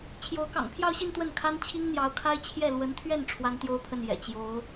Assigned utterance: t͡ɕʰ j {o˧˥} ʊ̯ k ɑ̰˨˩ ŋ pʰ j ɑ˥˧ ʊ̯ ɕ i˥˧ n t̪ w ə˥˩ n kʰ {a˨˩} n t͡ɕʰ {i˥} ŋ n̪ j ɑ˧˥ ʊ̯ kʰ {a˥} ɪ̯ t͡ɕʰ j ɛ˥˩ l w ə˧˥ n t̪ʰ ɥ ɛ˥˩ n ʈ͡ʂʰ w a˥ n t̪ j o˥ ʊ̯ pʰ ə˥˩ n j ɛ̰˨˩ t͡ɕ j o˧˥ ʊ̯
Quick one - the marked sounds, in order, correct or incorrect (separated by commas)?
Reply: correct, incorrect, correct, correct